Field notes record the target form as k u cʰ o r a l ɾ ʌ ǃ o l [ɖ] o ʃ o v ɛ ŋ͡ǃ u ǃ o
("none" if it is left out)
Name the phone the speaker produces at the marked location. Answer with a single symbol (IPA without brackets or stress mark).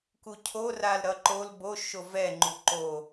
b